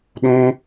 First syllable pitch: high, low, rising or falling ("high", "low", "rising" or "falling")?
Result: high